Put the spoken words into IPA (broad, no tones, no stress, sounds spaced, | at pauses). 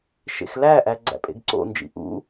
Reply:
ʃ ḛ x l æ ʔ æ ɡ͡ǀ æ̰ pʼ ḛ ɡ ǀ o̰ n d͡ʒ ḭ ʔ ṵ